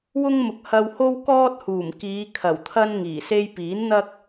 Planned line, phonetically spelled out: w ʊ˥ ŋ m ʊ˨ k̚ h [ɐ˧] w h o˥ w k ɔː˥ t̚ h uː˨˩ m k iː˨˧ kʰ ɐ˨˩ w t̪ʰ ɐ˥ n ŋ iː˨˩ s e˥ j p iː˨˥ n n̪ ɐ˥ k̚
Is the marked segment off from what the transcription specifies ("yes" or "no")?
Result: no